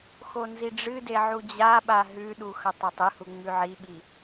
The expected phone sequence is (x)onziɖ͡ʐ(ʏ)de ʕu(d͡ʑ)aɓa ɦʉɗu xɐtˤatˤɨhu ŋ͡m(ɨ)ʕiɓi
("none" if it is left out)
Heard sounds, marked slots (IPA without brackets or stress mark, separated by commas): x, ɨ, d͡ʑ, ʉ